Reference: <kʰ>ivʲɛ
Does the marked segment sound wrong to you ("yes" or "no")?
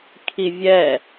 no